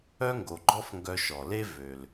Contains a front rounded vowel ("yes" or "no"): yes